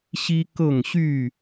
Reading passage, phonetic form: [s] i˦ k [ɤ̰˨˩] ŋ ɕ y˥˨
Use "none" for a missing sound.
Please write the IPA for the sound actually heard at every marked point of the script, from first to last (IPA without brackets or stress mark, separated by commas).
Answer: ɕ, ɤ˥˨